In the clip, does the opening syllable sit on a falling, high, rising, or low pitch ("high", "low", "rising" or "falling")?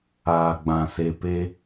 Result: low